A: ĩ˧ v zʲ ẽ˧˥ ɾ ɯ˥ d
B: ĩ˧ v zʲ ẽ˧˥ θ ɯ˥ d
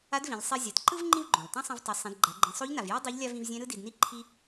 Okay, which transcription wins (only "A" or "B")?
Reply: A